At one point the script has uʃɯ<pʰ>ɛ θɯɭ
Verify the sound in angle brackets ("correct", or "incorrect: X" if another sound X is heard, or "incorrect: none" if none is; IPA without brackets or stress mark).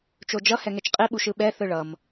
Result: incorrect: ɓ